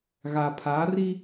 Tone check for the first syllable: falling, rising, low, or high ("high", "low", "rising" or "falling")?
low